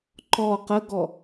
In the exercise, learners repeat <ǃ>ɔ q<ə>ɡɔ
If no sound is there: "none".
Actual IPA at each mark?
ǃ, ə

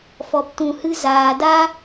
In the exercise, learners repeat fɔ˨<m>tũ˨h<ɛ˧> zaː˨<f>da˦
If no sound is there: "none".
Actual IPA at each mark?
p, ɨ˧, none

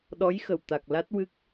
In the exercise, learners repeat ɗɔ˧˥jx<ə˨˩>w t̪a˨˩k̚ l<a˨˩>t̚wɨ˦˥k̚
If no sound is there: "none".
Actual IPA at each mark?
ə˨˩, a˦˥

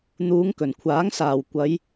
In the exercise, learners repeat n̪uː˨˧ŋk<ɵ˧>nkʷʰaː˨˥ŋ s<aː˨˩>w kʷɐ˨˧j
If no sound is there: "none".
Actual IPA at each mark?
ɵ˨˩, aː˨˩

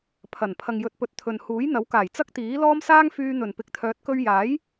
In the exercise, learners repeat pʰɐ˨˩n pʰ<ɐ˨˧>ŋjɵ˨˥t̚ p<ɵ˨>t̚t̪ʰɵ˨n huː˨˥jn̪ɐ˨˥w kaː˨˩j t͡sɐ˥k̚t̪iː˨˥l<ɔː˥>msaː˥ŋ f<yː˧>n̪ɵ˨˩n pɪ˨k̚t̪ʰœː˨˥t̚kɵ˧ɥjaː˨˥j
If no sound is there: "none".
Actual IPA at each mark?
ɐ˨, ɵ˨, ɔː˥, yː˧

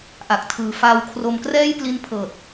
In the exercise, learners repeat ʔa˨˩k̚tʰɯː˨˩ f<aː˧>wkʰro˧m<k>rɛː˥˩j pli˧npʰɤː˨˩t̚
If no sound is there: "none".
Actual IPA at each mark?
aː˧, k

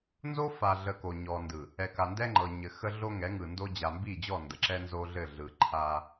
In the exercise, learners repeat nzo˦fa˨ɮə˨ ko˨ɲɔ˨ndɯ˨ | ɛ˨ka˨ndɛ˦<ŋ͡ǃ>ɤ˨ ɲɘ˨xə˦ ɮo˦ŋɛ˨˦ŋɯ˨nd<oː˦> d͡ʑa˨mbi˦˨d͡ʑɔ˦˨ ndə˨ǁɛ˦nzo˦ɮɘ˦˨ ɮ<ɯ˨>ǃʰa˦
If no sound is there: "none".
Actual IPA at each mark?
ŋ͡ǃ, o˦, ɯ˨

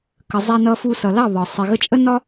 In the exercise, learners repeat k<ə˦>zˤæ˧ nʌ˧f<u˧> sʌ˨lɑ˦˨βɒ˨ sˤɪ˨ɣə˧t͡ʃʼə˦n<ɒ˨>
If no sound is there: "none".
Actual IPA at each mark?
ə˨, u˧, ɒ˦

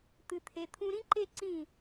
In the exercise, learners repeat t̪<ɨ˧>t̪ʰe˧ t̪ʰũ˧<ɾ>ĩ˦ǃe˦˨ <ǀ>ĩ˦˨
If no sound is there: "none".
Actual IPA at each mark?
ɨ˧, ɾ, ǀ

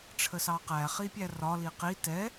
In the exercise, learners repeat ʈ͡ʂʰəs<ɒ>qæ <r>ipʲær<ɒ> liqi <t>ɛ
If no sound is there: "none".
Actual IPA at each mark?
ɑ, χ, ɒ, t

